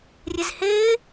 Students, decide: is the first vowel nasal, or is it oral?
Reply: oral